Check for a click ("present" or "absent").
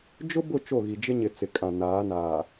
absent